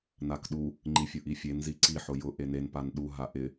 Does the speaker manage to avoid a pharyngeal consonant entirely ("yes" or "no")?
no